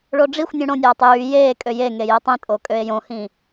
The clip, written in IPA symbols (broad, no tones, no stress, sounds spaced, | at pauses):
ɭ o ɖ͡ʐ i xʷ nʲ ũ ɽ õ nʲ æː tˤ j yː j eː kʼ ø j e ŋ e j e tˤ ĩ tʼ o kʼ ø e̯ j õ h ĩ